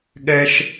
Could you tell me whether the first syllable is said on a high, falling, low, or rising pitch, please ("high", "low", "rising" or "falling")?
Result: high